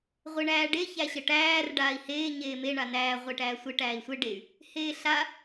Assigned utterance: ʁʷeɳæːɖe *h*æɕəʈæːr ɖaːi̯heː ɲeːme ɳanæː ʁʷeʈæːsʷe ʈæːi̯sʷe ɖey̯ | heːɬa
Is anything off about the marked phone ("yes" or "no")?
yes